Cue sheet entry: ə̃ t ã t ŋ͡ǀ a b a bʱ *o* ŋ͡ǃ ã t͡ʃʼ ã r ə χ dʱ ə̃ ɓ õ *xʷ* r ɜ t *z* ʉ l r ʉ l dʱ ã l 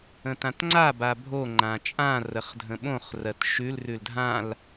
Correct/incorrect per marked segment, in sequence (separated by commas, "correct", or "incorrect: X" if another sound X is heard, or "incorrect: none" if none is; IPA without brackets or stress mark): correct, incorrect: χ, incorrect: ʃ